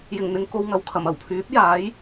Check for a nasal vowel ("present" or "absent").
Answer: absent